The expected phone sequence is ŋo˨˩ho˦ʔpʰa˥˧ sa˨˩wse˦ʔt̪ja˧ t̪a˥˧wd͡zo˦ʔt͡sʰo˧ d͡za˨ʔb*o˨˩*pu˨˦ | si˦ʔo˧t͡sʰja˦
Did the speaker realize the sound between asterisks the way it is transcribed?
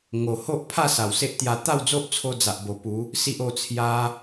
yes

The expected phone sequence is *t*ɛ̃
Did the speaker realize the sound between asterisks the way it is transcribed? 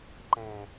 no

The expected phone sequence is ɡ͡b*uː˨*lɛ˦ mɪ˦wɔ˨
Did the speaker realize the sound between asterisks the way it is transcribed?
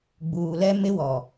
yes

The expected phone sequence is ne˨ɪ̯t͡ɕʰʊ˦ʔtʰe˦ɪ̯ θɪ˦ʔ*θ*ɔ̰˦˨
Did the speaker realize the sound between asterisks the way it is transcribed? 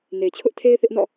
no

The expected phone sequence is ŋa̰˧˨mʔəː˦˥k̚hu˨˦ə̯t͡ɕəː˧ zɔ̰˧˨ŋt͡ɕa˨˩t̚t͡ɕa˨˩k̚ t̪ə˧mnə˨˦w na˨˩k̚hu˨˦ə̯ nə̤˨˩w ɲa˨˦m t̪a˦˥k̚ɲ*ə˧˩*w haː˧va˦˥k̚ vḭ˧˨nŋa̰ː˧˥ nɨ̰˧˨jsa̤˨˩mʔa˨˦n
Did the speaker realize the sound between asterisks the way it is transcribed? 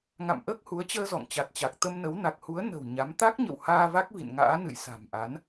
no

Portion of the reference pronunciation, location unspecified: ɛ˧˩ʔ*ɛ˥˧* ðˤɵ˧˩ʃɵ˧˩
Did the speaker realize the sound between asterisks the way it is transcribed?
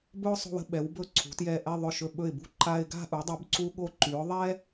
yes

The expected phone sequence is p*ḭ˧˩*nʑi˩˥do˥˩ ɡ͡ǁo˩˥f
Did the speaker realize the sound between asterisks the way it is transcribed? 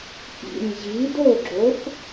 yes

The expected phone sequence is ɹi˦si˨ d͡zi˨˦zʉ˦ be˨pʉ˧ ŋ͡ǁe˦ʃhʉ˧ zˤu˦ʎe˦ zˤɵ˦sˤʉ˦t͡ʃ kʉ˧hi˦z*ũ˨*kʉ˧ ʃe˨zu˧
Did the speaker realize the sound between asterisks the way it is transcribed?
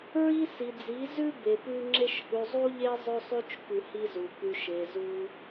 no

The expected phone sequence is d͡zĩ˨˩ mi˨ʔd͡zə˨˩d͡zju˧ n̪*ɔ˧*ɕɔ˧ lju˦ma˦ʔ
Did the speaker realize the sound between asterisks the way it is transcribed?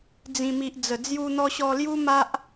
yes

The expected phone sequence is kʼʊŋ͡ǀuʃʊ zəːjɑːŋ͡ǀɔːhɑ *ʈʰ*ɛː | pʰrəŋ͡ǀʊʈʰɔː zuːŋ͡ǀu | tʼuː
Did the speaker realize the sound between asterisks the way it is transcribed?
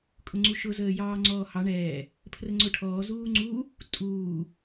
no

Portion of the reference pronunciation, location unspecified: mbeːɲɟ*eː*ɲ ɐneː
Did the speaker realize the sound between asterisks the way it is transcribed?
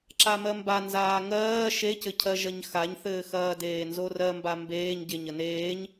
no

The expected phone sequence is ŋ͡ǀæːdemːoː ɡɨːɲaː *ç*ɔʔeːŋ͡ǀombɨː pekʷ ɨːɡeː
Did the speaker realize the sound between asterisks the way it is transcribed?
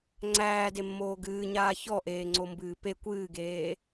yes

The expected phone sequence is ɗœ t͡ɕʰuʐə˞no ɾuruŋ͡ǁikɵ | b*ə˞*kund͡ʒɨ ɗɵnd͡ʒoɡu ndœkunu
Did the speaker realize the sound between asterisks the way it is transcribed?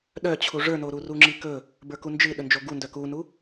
yes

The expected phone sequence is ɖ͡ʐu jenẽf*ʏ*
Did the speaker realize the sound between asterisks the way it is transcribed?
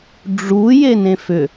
yes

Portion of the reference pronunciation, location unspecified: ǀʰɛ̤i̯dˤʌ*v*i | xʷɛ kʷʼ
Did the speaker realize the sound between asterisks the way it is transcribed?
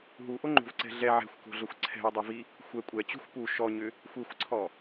yes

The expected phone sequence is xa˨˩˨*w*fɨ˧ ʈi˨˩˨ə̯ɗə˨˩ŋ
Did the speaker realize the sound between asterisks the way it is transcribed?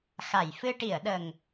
no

